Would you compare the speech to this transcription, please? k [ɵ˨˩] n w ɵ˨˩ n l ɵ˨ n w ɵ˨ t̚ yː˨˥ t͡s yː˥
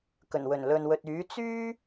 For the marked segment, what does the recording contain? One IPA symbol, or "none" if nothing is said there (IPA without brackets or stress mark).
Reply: ɵ˨˩